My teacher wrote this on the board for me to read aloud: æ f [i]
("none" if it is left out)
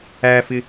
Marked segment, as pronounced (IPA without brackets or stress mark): ɪ